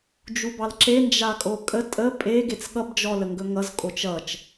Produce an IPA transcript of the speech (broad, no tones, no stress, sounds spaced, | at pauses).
d͡ʒ u b ɑ l ǁ e n d͡ʒ a kʼ o kʼ ə tʼ ə pʼ e ɡ e t͡s ɠ ʌ b d͡ʒ ɔ l ə ŋ ɡ ɵ ŋ ʌ z kʼ o t͡ʃ ʌ t͡ʃ